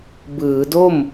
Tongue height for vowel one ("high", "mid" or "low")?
high